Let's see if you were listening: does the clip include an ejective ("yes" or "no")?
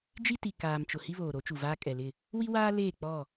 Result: yes